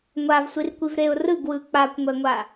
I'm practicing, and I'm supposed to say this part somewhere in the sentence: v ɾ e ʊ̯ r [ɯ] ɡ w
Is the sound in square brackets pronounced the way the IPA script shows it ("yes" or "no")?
yes